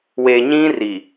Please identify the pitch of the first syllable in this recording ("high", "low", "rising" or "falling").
low